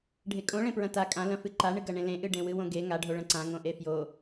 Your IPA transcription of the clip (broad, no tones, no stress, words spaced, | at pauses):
ɖʱekʼõ ɭẽpɹɐ̃ta kʼãlɐ̃fɨ ǃaɳɨ ɡɐɳẽlẽʔɨ ɖẽwɨwõɡe ŋaɖʱo ɭɐ̃ǀã ŋõʔefjo